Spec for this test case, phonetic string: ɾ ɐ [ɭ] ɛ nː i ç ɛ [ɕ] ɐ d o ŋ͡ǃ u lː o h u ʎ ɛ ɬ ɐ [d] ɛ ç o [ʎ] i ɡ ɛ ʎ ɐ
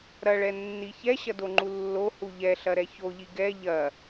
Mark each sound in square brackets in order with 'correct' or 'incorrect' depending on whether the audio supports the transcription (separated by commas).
correct, correct, incorrect, correct